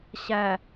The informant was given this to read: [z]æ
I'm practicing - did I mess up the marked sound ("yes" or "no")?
yes